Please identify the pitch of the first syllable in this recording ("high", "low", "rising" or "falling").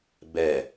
low